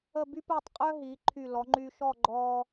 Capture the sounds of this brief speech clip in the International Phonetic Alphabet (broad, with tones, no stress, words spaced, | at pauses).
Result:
ə˥˧ by˥pəː˥˧tˤqʼœ˥ ɦiː˩˧ ǃʰy˧˩lɔ˩˧ŋ͡ǃy˧ʃɔ˥˧ ɡ͡ǃɔː˥